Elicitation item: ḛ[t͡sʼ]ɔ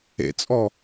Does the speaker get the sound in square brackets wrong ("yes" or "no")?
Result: no